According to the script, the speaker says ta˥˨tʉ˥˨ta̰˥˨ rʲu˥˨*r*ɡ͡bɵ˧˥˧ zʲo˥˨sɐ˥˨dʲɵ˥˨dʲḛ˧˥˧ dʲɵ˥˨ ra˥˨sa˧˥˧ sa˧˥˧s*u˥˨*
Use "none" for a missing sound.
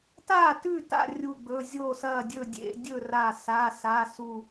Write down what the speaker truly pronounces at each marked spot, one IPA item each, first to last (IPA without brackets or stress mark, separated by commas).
none, u˥˨